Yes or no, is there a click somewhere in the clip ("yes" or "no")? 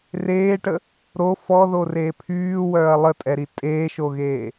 no